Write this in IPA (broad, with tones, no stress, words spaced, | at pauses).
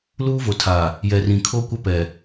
luː˦vo˨ tʰa˨ | jɛ˨rĩ˨ kʰo˦kʷa˦pɛ˨